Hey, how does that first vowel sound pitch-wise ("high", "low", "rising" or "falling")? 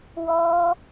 high